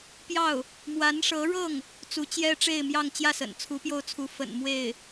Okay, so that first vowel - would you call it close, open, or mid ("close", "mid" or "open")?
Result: open